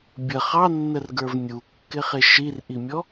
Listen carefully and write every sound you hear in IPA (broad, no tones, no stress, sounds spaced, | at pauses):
bʲ ə χ ɑ nː ə r ɡ ə˞ v nʲ u kː ɪ χ ɪ ʃ i r ʔ i mʲ ɔ